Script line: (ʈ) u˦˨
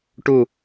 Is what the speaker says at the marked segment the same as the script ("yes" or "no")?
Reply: yes